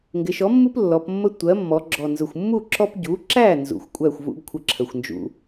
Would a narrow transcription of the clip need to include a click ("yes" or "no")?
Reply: yes